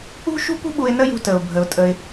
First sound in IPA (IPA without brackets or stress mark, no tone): ṳ